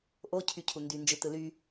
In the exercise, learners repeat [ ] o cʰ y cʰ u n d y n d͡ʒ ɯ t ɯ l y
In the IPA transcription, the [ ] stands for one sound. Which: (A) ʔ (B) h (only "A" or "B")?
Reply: A